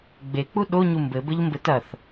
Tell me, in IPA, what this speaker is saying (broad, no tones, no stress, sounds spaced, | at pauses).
ɡ͡b e k͡p u ɗ o ɲ u m b ɘ b ɘ ʎ m b ɘ t ɐ θ